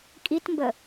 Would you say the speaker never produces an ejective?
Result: no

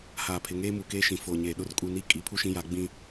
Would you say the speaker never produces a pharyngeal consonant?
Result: yes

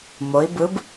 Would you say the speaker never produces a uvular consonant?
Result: yes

